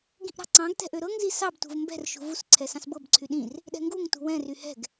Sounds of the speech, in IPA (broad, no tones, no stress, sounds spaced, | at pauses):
ɡ ĩ ʔ ɾ ɑ̤ ǀ ɑ̃ ɡ t ɛ̤ ʔ ø ɾ ɤ ŋ z i s ɑ b t ṳ v m b ɛ̤ r ʃ ṳ v u s ǀʰ ɛ s ɑ̃ s b ɤ b ǀʰ y ɗ ĩ r | ɗ ɛ̤ ŋ ɡ u ŋ t ṳ w ɛ̃ r y h ɛ̤ ɡ